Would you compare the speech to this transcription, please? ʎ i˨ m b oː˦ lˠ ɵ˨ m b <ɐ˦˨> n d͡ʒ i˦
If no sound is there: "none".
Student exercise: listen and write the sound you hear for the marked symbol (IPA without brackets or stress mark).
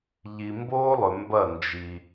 ɐ˦˨